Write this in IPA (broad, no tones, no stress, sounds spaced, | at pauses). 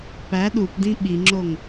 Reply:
p æ ɗ u p d ĩ ɓ i ŋ͡ǁ o ŋ